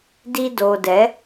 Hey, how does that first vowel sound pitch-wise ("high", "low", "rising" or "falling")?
high